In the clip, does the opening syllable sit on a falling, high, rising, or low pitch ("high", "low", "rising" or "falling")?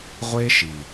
high